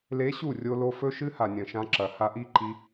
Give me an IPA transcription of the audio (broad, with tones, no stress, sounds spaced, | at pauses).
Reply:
l e˧˥ ɕ u˥˩ rʲ o˧ l o˧ f ɵ˧˥ ʃ ɨ˧˥ h a˨˩ nʲ ɐ̃˨˩ ʃ ã˧ ǁ ɐ˨˩ h a˧ ʔ i˥˩ ǃ i˧